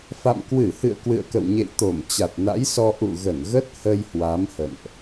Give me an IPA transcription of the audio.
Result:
f a̰˧˨ m k w ɨ˧˩ h ɨ̰˧˨ ə̯ k w ɨ̰˧˨ ə̯ k ə̰˧˨ w ɲ ḛ˧˨ j t̪ o˧˩ m t͡ɕ a˨˩ t̚ n a̰˧˥ j s ɔ˧ ʔ ṵ˧˨ ɣ ə˧˩ n ɣ ə˦˥ t̚ h ə˧ j h w a˨˦ m h ə̰˧˨ n ʔ

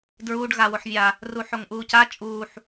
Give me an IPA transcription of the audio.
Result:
d ɹ uː ɖ ɣ a w o ħ vʲ a | r u ħ o ŋ ʔ uː c a t͡ʃʼ uː ħ

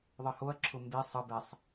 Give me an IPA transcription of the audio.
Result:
ðˤ ə h o ɐ̯ ǁʰ ʊ m b e sˤ ə b ɛ sˤ

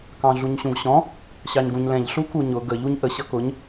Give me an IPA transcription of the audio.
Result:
k ɑ̃ ɮ u ɲ ɕ ũ ɡ ɕ ɔ̃ | ɕ ɑ ɲ ɡ ũ ɲ l ɛ̃ ʎ ɬ u k u ɲ ʊ ɡ ə ʎ u ɲ ʔ ə ɕ ʌ k ʊ ɲ

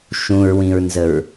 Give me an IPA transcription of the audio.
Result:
ʃ ũ ɹ w ĩ ɹ n z ə ɹ

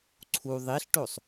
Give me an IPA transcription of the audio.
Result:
ǀʰ u ðˤ i ɬ ʈ o sˤ

